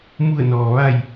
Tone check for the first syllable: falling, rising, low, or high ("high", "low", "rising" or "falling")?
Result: falling